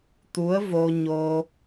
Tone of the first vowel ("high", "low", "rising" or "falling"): rising